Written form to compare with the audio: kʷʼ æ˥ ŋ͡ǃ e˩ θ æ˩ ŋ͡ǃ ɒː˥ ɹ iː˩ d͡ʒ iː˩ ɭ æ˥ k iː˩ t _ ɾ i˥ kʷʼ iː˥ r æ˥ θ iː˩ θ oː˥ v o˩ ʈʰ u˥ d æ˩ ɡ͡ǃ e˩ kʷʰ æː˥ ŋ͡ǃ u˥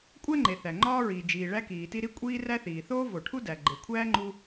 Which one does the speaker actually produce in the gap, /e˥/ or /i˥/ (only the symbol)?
i˥